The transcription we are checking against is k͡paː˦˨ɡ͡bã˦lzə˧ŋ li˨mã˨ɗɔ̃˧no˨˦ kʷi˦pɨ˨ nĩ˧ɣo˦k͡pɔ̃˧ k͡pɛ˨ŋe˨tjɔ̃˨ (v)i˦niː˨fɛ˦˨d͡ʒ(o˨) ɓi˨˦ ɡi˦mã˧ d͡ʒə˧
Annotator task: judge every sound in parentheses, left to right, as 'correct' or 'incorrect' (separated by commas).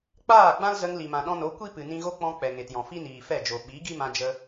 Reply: incorrect, correct